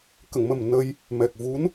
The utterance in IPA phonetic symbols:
k ə˨˩˨ ŋ m ə˨˩ m n ə˧ j | m ɛ˨˩ k̚ v u˧˥ n

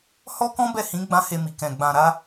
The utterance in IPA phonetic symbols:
h ɔ˦ k ɔ̃˦ b ɛ˦˨ h ĩ˨˦ ɡ͡b ã˦ h e˧ m i˨ k ɛ̃˨ ɡ͡b ã˨ ɾ a˧

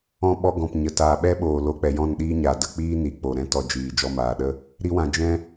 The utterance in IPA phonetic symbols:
ɔ̃˧ ɓ ɔ˧ ɡ ɔ̃˨ p ɲ ə˨ t aː˨ ɓ ɛ˦ ɓ oː˨ l o˨˦ k͡p ɛ˨ j ɔ̃˦˨ n ɗ iː˦ ɲ a˨ d ə˦˨ k͡p iː˦ n i˨ k͡p o˨ ɾ ɛ̃˦ t ɔ˧ d͡ʒ iː˨ d͡ʒ ɔ˧ m aː˨ ɗ ə˦ | ɾ i˧ w ã˨ d͡ʒ ɛ̃˦

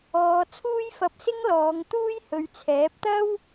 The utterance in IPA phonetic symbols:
ɔː˨˧ t͡sʰ uː˥ j f ɐ˧ p̚ s ɪ˥ ŋ l ɔː˨˧ ŋ t̪ uː˥ j h ɵ˨˧ ɥ t͡sʰ ɛː˨˥ p̚ t̪ ɐ˥ w

